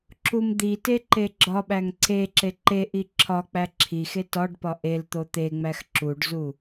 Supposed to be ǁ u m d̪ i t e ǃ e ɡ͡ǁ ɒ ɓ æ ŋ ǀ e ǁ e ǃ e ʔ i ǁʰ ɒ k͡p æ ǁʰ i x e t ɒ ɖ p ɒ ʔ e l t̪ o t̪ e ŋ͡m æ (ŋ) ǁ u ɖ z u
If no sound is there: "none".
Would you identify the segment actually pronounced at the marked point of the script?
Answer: x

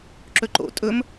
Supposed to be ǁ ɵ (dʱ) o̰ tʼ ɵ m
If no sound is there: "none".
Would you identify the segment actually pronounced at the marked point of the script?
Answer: ǃ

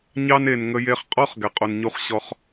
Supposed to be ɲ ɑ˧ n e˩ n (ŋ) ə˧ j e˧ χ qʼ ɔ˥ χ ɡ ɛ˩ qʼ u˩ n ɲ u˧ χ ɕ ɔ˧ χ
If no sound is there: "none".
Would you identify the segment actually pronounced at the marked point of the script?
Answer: ŋ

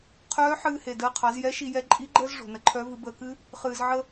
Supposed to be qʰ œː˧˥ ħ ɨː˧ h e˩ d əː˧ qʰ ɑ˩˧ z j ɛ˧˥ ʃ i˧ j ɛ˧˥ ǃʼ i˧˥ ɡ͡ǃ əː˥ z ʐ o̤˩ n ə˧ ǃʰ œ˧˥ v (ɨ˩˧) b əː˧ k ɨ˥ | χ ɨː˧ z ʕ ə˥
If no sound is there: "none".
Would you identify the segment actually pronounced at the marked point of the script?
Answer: ɨ˩˧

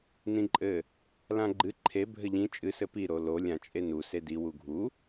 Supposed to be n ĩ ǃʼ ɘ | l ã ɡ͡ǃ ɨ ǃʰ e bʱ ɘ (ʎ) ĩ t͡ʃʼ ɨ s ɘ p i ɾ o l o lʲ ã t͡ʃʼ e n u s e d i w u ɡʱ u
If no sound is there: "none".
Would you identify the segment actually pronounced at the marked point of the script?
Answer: ʎ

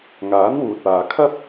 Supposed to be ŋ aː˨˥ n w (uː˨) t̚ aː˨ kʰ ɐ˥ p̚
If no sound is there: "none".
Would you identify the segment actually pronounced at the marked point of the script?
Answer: uː˨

